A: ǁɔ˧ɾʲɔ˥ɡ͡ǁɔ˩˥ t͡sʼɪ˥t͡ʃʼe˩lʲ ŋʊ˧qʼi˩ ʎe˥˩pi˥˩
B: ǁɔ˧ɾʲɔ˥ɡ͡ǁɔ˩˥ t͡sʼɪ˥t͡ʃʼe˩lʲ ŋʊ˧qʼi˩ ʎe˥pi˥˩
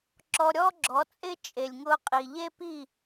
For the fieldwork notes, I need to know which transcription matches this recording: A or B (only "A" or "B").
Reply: B